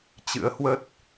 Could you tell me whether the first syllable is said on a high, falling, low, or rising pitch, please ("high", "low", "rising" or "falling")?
rising